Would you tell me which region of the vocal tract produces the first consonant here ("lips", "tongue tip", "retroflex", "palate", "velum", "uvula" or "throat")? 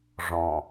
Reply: retroflex